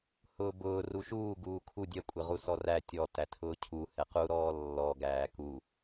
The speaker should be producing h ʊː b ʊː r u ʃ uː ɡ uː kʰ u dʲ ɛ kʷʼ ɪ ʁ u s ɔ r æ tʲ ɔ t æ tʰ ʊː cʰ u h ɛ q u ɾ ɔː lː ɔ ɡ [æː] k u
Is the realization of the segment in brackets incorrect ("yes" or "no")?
no